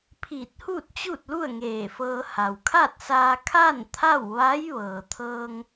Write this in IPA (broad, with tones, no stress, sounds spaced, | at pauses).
pʰ iː˧˩ t̚ h uː˥˨ t̚ t͡ɕ uː˥˨ t̚ l u˥˨ ə̯ ŋ eː˧˩ f ɤː˧ h a˩ w kʰ a˥˨ t̚ s aː˧ kʰ a˥˨ n t̪ʰ a˥˨ w ʋ a˧˥ j ʋ ɤː˩ t̪ʰ ɤː˧ ŋ